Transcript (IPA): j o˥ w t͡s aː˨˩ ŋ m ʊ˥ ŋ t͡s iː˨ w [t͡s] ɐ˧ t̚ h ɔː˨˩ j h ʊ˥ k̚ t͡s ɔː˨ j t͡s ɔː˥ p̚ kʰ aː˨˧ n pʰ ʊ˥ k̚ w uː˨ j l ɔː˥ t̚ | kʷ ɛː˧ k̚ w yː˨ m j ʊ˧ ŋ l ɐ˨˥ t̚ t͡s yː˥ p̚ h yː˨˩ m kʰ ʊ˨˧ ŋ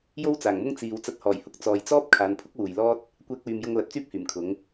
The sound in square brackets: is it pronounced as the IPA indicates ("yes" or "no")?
yes